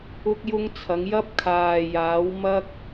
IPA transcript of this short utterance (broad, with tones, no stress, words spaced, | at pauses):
ʊ˥k̚jʊ˥ŋt͡sʰɐ˨˥ŋ jɐ˥p̚kʰaː˨jaː˨˥wmɐ˥k̚